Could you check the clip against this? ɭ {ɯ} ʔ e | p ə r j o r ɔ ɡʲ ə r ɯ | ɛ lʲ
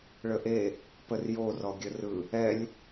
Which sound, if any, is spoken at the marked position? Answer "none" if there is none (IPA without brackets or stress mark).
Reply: ə